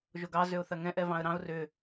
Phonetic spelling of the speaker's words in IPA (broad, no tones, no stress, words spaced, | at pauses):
ʒoɡɑ zʏʊ̯θɐŋɛ̃ʔ ɛvɑ̃ə̯ɾɑ̃ʊ̯ rʏ